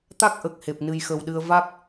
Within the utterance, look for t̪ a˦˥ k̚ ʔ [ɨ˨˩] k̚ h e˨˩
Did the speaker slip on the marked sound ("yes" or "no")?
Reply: yes